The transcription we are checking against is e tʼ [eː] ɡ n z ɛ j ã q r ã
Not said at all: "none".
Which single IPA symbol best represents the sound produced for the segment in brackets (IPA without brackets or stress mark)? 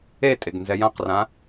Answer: e